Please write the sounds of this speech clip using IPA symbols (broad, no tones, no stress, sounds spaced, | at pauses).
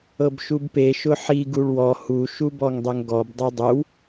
ɤ b ʃ u b p e ʃ ʊ ħ i ɡ u ɭ w ɔ h u ʃ u b ɔ ŋ dˤ ø ŋ ɡ ɔ b dˤ e dˤ ø w